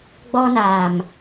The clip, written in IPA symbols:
ɡ͡b ɔ˦ n aː˨ m

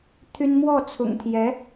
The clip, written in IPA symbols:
t̪ʰ y˥ n m w ɔ˥˩ t͡sʰ ʊ̰˨˩ ŋ t̪ʰ j ɛ˧˥

